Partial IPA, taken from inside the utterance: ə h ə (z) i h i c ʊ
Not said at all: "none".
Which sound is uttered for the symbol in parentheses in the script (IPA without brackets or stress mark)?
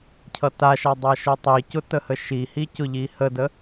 ʃ